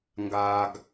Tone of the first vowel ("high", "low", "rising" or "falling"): high